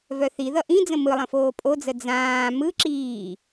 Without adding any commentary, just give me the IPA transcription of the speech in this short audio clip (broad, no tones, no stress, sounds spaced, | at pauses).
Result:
v œ θ i ð ʌ ʔ ĩ d͡z ə̃ m ɯ lˠ ə̃ f oː pʼ o d͡z ə d͡z ãː m ɯ ǁ iː